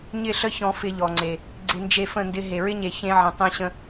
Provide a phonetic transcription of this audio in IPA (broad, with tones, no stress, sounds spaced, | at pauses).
ɲ ɪ˦˨ ɬ ə˦ ç ɔ̃˧ f ɪ˧ ʎ ɔ˨ ŋ͡ǀ e˨ | ɡ͡ǀ ɪ˧ n d͡ʒ e˧ f ə̃˦˨ n d ɪ˧ ɦ e˨ ɹ ɪ˦ ɲ e˨ ç ẽ˧ ʕ ə̃˨ tˤ ẽ˧ ɕ ə̃˧